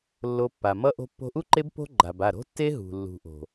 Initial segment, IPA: lː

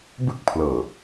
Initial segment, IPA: b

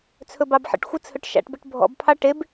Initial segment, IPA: t͡sʰ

